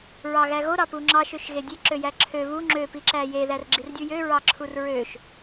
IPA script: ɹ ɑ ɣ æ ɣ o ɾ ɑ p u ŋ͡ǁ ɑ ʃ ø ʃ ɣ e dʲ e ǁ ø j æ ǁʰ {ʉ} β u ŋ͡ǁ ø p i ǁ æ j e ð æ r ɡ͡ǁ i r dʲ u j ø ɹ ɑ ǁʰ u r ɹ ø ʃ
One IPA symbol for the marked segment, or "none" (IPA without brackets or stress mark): ø